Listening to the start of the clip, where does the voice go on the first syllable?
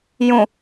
low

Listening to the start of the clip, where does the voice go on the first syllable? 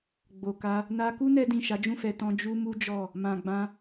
low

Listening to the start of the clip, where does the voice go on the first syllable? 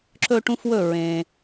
high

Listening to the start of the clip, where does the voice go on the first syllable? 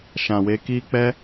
low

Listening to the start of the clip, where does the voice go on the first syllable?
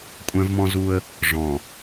high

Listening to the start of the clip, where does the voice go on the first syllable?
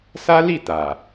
high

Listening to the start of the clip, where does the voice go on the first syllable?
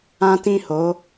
high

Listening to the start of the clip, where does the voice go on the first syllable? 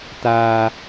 high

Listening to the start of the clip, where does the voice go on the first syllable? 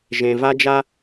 low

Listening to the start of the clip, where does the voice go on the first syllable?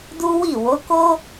high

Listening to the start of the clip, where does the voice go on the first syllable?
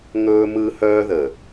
high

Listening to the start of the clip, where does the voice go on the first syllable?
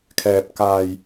low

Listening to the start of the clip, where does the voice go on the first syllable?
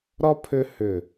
high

